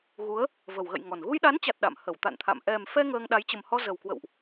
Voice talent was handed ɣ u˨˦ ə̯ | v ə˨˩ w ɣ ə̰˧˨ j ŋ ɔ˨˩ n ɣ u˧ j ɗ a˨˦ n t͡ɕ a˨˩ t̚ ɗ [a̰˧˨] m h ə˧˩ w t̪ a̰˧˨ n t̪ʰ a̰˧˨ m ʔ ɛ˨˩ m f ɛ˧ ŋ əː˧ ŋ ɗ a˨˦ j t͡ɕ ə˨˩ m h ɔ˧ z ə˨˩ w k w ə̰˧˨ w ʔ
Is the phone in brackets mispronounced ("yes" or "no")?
no